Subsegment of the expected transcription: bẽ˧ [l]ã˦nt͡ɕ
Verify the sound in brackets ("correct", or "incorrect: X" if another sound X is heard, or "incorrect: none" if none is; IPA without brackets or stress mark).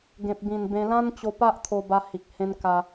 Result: correct